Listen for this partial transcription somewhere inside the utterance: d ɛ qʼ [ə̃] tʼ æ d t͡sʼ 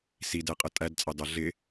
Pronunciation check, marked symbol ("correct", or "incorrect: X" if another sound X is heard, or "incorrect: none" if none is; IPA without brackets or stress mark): incorrect: ə